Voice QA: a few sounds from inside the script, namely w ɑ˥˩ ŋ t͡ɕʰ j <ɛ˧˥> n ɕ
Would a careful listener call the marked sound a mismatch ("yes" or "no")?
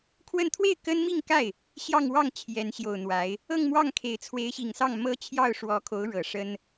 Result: no